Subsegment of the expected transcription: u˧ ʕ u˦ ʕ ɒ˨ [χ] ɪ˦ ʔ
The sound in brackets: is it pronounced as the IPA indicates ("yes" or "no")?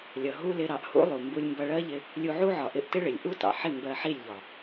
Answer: no